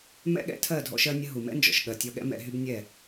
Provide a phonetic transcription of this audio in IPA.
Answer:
mɛ̰˦ɠɛ̰˦tʰɜ˦˨ dʱɔ̰˧ʃɜ˧nʲə˧ ɦu˨mɛ̰˦nd͡ʒɔ̰˨ʃ ɠɜ˨tʲɔ˧ɠɛ̰˦ mɛ̰˧ɦy˦bnʲɛ˦˨

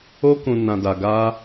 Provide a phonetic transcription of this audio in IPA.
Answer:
o˦kũ˧ nã˧da˧ ɡa˦

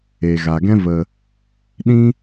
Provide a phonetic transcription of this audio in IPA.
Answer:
e˨ɣa˨ɡɛ̃˦ və˧ | ɗĩ˦

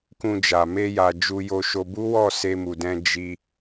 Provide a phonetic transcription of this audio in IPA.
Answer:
kũ˧d͡ʒa˨ me˧ja˨ d͡ʒu˧jo˧ʃo˧ bu˦wɔ˦˨ se˧mu˨dɛ̃˧ d͡ʒi˧

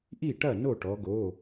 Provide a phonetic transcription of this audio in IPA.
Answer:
ʔi˥˩ʈɐ˥˩ no˥˩ʈɔ˩˧ ɡo˩˧˩

